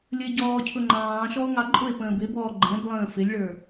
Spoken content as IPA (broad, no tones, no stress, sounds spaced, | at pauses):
lʲ ə e̯ ɟ ɔː cʰ ʊ ŋ͡ǃ ɑ̃ː ʃ ɔ o̯ ŋ ɑ ǃʼ ʊ e̯ p ə̃ː b ɪ b ɔː ɡ͡ǃ ɛ̃ b lˠ ə̃ː f ɪ lʲ ɭ ə˞